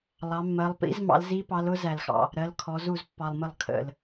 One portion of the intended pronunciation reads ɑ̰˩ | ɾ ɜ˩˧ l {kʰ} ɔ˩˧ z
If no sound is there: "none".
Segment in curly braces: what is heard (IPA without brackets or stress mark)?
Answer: kʰ